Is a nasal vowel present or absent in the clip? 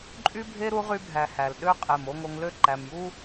absent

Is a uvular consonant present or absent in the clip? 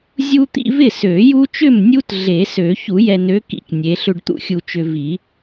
absent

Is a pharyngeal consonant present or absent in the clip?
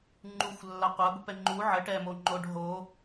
present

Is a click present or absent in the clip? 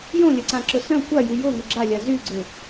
present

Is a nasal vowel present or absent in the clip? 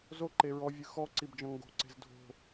present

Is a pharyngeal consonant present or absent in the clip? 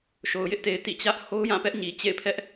absent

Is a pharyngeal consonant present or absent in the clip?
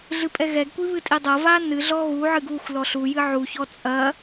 present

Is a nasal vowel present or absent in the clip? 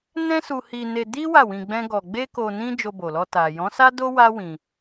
present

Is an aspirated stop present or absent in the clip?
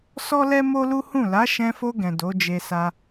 absent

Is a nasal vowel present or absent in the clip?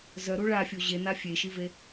absent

